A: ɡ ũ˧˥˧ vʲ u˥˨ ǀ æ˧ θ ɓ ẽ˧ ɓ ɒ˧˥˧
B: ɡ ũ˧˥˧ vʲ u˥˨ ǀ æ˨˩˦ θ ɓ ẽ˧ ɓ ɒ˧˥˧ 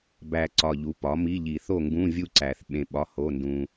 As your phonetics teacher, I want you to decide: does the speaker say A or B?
B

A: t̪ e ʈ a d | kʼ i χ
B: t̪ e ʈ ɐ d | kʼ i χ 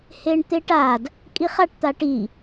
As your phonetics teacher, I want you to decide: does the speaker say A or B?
A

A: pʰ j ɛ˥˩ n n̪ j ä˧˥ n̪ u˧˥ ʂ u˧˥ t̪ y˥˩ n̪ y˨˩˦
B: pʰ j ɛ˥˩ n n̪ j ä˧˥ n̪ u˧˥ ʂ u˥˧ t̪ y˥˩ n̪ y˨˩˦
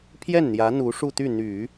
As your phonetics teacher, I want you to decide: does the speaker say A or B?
B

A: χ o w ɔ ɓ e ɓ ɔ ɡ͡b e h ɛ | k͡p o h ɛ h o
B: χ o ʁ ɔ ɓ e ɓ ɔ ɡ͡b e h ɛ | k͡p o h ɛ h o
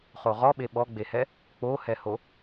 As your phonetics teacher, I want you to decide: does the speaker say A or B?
B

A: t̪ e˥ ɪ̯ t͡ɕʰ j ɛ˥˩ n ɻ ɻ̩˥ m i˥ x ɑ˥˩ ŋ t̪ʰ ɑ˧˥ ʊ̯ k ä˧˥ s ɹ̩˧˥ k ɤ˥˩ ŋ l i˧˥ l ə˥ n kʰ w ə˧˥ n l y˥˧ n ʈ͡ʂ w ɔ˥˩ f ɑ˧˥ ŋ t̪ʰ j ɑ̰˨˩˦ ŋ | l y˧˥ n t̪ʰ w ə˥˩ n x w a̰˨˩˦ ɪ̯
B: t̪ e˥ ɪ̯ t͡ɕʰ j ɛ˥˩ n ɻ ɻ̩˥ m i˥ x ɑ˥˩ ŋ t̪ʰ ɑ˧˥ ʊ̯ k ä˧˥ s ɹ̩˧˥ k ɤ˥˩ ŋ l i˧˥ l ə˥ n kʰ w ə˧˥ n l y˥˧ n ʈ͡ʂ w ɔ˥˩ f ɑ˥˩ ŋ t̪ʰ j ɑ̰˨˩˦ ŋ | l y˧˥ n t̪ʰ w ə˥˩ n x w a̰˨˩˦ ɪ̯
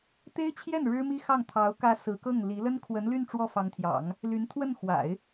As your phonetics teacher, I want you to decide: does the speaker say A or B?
A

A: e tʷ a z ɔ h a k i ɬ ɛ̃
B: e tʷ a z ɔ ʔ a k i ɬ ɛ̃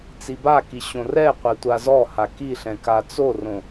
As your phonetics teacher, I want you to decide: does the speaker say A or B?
A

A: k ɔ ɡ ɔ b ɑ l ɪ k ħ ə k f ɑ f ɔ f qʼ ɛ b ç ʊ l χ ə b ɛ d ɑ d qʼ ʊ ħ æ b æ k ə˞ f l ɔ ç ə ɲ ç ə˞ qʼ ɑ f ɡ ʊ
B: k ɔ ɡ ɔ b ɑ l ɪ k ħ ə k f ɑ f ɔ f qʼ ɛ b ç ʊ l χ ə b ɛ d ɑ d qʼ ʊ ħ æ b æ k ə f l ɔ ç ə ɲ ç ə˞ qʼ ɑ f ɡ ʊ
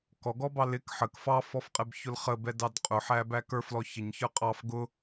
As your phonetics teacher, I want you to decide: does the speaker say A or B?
A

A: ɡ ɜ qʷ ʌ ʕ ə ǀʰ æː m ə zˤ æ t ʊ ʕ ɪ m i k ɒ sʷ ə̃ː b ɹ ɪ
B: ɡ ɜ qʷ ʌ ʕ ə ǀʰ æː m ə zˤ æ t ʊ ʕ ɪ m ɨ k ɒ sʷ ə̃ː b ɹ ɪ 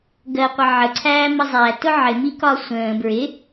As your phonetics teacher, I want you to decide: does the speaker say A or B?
A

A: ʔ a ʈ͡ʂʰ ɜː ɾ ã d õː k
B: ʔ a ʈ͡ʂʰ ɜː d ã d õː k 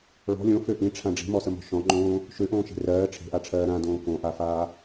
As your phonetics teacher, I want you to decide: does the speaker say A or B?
A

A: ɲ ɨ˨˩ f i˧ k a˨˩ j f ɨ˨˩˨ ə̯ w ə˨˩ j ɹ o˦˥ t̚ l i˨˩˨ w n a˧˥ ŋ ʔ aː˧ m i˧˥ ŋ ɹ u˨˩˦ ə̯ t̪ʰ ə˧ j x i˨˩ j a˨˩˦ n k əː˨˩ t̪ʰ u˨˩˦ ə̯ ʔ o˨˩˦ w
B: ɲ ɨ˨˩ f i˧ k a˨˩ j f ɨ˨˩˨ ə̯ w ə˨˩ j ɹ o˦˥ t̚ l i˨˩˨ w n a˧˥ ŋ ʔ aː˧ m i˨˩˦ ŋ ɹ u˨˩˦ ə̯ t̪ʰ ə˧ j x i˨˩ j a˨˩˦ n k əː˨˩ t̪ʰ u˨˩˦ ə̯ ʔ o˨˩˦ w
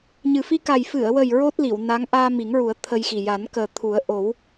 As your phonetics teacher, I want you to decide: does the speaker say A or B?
B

